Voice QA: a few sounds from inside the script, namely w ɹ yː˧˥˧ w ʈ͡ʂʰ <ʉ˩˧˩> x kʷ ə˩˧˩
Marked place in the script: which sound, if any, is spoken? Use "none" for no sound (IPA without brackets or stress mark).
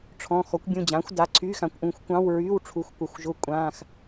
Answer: u˩˧˩